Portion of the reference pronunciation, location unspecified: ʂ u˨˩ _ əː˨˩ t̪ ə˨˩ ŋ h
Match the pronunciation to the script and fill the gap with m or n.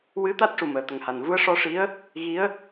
m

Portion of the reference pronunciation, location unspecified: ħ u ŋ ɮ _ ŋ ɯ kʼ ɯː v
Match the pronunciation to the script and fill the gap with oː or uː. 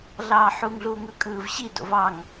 uː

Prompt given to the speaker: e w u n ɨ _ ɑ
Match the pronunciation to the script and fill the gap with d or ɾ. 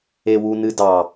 d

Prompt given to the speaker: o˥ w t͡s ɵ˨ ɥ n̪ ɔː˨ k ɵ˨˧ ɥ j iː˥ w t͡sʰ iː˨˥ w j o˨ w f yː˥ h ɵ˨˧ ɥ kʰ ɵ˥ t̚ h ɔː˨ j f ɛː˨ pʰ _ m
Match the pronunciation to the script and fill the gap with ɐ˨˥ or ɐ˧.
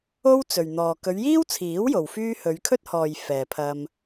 ɐ˧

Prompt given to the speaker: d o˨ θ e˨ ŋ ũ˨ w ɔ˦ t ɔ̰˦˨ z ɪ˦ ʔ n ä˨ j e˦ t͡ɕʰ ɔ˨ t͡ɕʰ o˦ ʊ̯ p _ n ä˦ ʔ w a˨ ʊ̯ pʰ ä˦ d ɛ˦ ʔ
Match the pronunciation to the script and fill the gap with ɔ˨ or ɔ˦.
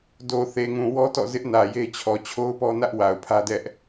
ɔ˦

